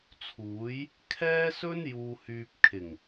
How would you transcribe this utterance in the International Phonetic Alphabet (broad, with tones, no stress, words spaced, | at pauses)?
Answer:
t͡sʰuː˨˥j | kʰɛː˥sɵ˥n juː˨hyː˨p̚kʰɪ˨˩ŋ